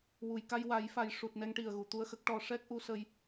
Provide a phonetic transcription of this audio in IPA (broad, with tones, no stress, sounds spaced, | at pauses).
w u˨˩˨ j k a˧ j w a˨˩˦ j f a˨˩ j ʂ u˨˩ t̚ n ɛ˧ ŋ ʈ i˨˩ ə̯ ɣ u˨˩ t̪ u˧ ə̯ x ə˦˥ k̚ ʈ ɔ˧ ʂ ɛ˦˥ k̚ ʔ u˧˥ s ə˧ j